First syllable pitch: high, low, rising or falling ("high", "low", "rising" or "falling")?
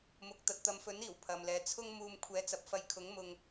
low